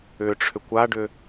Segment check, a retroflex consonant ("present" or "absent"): present